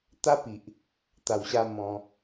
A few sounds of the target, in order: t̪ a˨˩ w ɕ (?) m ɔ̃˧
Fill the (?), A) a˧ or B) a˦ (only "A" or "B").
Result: A